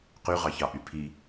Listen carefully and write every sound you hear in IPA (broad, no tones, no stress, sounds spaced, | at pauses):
q y ʁ ɑ ç ɑ ʔ y pʰ i